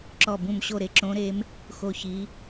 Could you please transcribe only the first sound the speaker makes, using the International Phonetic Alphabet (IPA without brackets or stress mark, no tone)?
ǁ